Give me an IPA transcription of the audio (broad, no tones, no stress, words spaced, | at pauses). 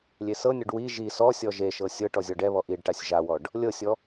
lʲesɤnʲɔɖ wi ʒi sɔsʲɔ ʒeʃɤ sʲɤ ʈɔzʲɔɖɛβɔ ʔiɖʈasʲ ʒawɔɖ | lʲɤsʲɔ